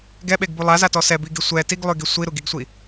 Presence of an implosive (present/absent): present